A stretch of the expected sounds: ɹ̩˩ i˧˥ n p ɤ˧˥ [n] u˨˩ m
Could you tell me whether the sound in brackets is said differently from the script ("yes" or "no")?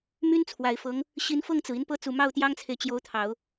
yes